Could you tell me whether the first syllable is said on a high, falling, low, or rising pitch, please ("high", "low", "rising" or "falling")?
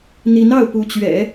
rising